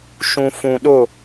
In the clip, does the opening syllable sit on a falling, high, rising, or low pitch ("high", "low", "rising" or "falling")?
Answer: low